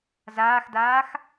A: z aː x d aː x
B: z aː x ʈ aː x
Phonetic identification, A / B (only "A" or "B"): A